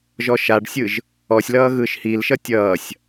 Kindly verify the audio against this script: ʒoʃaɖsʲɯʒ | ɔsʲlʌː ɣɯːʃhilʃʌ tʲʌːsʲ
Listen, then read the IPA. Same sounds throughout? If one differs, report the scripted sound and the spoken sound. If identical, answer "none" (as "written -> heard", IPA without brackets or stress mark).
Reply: o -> ɔ